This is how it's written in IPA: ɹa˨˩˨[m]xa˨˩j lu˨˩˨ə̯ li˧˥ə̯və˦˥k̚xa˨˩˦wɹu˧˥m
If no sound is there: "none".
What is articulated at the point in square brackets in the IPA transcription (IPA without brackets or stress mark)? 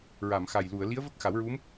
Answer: m